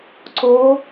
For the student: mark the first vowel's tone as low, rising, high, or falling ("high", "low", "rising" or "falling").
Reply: rising